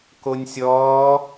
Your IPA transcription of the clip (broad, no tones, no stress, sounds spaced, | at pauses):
k o nʲ sʲ ɔː